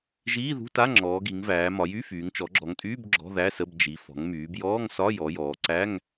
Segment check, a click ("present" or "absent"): present